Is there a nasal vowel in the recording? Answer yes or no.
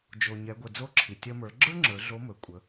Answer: no